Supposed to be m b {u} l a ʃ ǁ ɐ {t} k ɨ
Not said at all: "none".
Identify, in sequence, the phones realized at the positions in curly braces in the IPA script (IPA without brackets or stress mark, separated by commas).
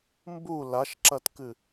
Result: u, t